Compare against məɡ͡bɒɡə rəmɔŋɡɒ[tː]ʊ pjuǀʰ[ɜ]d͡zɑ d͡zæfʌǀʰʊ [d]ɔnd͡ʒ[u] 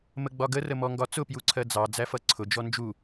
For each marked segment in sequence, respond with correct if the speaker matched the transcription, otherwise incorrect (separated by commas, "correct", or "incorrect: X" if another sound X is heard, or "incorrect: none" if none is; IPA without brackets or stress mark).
incorrect: t͡s, correct, incorrect: d͡ʒ, correct